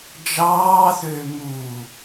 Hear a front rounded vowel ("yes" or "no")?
yes